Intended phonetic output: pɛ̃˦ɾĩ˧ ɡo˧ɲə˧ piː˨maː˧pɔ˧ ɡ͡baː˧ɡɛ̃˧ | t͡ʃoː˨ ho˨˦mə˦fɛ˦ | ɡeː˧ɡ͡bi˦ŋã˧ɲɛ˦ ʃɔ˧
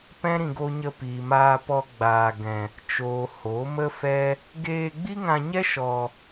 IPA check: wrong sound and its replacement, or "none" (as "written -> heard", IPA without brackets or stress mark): none